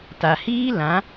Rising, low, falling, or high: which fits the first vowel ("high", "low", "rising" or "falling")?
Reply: low